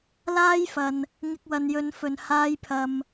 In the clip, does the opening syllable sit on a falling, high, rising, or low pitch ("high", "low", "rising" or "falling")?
high